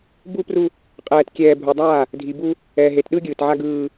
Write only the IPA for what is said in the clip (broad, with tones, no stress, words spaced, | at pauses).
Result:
bu˦pru˦ | qʼɛː˨tkʲɛː˨ bʱu˨dˤaː˦˨ | dʱi˨bu˦ | ɛː˨ɦe˨tɗɯ˦ ɡʲɯː˨tʕa˦ ɡɯː˦